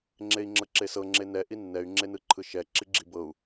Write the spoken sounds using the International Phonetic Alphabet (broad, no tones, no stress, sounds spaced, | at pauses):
ŋ͡ǁ e i̯ ŋ͡ǁ ɤ ǁ e s ɤ ŋ͡ǁ e n ɛ ʔ i nː ɛ y̯ ŋ͡ǁ e n ɯ ǃʰ ɯ ʃ ɛ ǁ i ɡ͡ǁ i b ɤ u̯